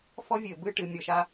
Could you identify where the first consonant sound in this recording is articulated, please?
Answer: labial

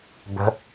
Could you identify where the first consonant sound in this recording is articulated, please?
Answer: labial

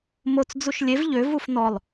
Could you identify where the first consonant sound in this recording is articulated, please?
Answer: labial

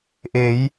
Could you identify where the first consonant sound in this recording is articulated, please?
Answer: glottal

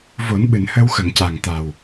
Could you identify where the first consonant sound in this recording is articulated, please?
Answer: labial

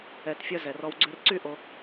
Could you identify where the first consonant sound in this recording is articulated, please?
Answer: alveolar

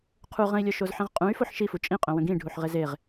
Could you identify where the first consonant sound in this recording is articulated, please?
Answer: uvular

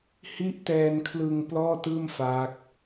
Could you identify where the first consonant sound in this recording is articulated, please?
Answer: glottal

